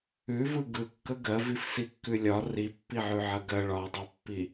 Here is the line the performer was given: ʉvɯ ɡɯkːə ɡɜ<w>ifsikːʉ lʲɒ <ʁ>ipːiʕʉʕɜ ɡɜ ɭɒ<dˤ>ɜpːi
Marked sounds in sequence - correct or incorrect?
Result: incorrect, incorrect, correct

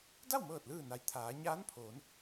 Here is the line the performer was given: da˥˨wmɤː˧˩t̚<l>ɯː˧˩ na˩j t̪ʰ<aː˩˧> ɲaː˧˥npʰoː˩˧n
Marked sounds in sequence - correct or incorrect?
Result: correct, correct

